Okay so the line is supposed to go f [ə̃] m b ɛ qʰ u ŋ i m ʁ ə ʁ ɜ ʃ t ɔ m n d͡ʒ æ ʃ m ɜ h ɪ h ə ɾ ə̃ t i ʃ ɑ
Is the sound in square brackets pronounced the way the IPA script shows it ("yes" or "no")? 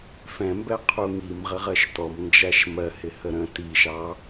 no